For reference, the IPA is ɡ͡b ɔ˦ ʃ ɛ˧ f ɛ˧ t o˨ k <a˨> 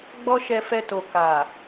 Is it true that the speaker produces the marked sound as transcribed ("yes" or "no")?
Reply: yes